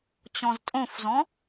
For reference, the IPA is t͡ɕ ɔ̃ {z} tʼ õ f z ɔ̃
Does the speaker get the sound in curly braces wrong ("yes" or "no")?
no